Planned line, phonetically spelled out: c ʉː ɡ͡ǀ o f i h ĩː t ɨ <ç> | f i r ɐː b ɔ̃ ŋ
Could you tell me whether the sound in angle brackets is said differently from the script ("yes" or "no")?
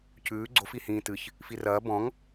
no